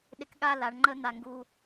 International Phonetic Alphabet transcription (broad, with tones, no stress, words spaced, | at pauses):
ɗɪ˧kɠa˥˧la˩˧ɳŋ͡ǃə˥˧ n̪a˧˩ŋɡu˧